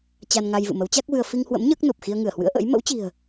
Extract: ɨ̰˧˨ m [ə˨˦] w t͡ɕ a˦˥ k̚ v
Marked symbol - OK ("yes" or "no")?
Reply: yes